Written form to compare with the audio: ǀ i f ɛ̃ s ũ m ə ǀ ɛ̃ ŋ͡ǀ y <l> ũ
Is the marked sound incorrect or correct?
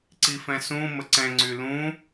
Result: correct